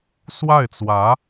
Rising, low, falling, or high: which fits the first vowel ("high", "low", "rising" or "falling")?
falling